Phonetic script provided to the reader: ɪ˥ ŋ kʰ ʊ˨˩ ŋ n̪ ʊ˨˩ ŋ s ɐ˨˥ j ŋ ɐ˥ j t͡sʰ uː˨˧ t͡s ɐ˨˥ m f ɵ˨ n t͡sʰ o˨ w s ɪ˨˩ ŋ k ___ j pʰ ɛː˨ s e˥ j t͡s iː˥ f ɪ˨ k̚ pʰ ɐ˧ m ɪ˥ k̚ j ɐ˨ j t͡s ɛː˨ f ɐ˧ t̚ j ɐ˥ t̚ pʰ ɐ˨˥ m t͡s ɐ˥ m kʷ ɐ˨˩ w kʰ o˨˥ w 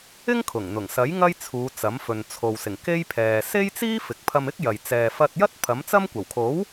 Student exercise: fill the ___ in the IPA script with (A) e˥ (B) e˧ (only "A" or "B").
A